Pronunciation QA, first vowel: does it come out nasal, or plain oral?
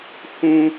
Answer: nasal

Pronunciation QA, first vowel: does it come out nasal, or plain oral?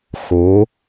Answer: oral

